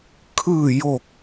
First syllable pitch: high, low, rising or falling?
falling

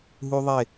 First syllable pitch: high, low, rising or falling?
high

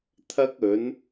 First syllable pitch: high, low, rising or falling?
high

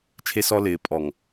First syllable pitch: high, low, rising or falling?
high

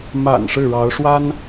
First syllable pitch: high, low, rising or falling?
low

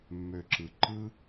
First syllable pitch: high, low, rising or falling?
low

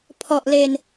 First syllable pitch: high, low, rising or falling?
low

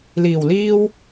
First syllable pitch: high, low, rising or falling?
low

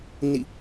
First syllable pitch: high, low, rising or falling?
falling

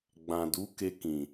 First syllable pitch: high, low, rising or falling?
low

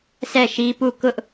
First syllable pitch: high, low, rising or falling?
falling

